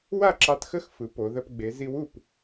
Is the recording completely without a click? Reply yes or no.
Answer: no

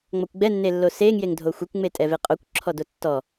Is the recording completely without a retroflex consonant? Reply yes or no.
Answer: yes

